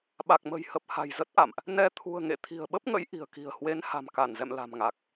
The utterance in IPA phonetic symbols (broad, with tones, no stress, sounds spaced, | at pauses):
ɓ a˨˩ k̚ m ə̤˨˩ j h ə˨˩ p̚ h a̤˨˩ j z ə˦˥ t̚ ʔ a̰˧˨ m ʔ | n ɛ˧ t̪ʰ ṳ˨˩ ə̯ ŋ ḛ˧˨ t̪ʰ i̤˨˩ ə̯ ɓ ə˦˥ p̚ ŋ ə̰˧˥ j ʔ i̤˨˩ ə̯ k i̤˨˩ ə̯ h w e˨˦ n h a̤˨˩ m k a˧˩ n z ɛ̰˧˨ m l a̤˨˩ m ŋ a˨˩ k̚